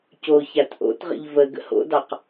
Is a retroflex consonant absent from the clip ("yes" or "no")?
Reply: yes